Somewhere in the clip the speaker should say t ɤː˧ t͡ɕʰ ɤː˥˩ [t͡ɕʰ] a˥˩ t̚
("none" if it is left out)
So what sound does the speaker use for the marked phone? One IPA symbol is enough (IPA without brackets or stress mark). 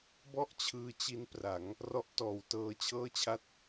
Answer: t͡ɕʰ